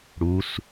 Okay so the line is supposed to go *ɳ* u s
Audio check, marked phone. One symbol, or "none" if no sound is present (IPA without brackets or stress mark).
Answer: ɽ